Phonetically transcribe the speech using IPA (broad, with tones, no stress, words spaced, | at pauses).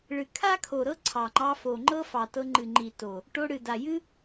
ɭɨ˨ kʰa˦kʰo˨ɾɤ˦ ǀʰɑ˨ŋ͡ǃɑ˧fo˨ŋ͡ǃɤ˦ fɑ˨tɤ˧ŋ͡ǃɨ˨ŋ͡ǃi˨ to˨ | ʈo˧ɽɨ˨da˨ jɨ˦